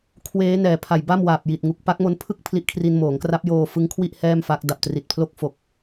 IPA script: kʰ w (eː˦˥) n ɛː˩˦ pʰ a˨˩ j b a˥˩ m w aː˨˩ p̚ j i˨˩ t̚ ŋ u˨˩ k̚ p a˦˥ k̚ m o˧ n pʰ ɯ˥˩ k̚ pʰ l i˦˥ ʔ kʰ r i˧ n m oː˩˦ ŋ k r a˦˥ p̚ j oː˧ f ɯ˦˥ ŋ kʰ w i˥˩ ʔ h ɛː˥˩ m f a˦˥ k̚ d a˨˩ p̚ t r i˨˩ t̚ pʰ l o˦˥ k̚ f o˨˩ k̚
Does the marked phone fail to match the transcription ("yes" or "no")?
no